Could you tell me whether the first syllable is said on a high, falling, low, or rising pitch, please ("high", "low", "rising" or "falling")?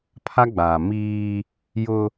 high